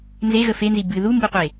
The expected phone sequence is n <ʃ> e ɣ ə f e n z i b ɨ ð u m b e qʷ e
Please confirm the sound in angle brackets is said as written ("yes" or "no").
no